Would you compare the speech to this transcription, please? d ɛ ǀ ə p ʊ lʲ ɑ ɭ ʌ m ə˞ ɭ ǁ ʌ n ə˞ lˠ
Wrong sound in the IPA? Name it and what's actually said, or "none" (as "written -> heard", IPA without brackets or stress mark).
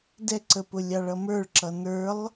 none